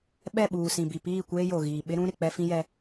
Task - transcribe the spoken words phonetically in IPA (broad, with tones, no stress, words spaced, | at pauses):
ɓɛ˦˨ɓuː˨sĩ˨bi˨ piː˦˨kʷeː˦jo˨ɣiː˨ ɓɪ˦ɾũ˦ ɾɪ˨k͡pɛ˦fĩ˦jɛ˦